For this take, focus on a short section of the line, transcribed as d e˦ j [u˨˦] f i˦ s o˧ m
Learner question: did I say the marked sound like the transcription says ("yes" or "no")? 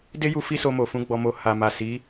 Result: no